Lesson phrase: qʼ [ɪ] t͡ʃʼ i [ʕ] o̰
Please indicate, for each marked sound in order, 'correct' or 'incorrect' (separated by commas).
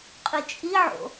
incorrect, correct